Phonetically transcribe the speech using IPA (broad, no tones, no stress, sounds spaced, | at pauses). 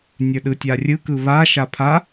nʲ ə˞ ɗ ɯ tʲ a rʲ ɯ k ɯ β a ʃ a pʰ a